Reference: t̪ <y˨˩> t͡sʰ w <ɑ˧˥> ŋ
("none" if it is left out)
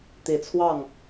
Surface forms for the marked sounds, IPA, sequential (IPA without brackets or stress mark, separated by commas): i˨˩, ɑ˥˩